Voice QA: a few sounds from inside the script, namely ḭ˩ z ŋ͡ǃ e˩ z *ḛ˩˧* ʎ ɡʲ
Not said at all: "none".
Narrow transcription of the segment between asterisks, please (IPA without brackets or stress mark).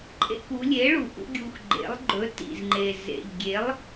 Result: ḛ˩